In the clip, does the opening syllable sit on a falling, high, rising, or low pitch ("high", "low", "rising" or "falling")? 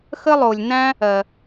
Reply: high